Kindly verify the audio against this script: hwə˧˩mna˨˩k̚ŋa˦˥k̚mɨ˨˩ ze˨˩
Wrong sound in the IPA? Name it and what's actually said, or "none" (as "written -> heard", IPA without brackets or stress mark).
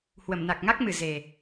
none